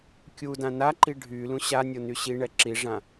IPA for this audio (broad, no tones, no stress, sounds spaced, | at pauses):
kʲ u d ã n a ǃ i ɖʱ y l ũ ɕ a nʲ o n y ɕ i ɳ ɛ ǁ i ʐ ã